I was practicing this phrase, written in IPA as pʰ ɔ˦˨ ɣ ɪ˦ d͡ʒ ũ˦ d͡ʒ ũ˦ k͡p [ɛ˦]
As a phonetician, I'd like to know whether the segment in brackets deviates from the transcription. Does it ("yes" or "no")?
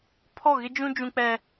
no